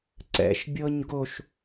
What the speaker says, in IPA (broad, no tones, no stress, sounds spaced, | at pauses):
ǀ ɛ̰ ʃ bʲ ɤ ɲ ɡ o ʃ